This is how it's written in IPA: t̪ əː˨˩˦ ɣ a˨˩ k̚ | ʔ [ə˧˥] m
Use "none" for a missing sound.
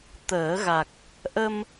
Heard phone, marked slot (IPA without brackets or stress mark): ə˧